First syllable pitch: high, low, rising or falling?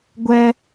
high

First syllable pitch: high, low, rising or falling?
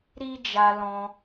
high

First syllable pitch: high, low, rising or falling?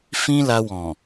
high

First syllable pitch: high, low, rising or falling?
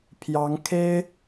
rising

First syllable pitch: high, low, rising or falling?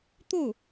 falling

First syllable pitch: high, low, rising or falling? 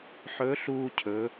rising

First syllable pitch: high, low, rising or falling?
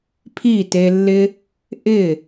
falling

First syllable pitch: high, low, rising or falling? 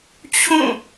falling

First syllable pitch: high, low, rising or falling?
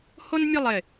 high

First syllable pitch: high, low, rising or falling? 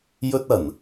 high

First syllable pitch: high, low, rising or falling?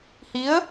rising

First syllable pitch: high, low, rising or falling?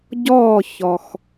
falling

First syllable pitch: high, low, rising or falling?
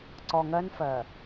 low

